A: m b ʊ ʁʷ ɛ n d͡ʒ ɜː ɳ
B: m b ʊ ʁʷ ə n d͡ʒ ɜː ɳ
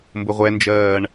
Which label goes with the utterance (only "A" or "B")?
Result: A